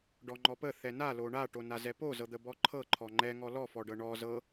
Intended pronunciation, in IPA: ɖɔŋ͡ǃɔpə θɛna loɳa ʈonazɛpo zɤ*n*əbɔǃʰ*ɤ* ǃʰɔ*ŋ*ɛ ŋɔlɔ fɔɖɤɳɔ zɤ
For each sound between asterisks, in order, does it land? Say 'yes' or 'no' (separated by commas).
no, yes, no